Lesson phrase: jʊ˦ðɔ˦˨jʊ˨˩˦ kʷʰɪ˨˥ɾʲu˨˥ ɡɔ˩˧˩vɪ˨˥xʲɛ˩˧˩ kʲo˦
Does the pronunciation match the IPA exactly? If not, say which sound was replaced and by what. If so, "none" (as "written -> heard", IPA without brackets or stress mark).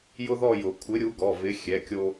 none